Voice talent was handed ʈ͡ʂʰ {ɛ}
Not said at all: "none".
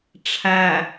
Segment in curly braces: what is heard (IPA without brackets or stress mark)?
æ